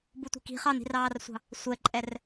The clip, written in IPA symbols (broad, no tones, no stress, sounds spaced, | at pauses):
b u tʷ i̤ k i̤ χ ɑ n i̤ r ɑː r sʷ ɑ̤ | sʷ ɛ ǃʼ ɛ r